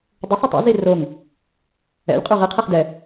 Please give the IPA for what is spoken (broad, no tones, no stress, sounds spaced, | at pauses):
dˤ ɵ sˤ ɵ tˤ ɛ̰ z i r o ŋ | ɛ̰ lʲ qʼ y ʁ i qʰ e χ d ɛ